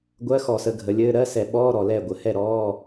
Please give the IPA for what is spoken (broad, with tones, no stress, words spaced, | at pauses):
ɡʷɜ˧˥˧xɔ˧˩˧sə˩˧ ɡʱə˩˧lʲɘː˧˥˧ ɾɜ˧˥˧ sɛ˧˩˧ɓɔː˧˥˧ɾɔ˨˩ lɛ˥˩ɡʷə˩˧ hɛ˥˩ɾɔː˧˥˧